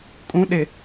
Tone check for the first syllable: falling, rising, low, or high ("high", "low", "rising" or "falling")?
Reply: rising